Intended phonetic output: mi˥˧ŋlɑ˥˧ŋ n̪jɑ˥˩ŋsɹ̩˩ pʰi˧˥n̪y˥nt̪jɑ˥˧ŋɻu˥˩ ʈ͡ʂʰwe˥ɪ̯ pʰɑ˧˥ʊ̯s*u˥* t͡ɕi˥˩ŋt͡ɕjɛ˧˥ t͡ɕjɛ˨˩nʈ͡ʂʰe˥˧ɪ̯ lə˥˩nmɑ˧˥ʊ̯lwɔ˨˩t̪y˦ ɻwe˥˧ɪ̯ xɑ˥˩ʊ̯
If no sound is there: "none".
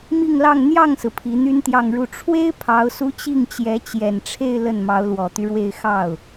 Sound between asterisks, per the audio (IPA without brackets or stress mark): u˥